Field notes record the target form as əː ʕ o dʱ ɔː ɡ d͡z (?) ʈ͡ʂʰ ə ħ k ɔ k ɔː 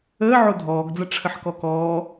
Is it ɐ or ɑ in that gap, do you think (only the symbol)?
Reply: ɐ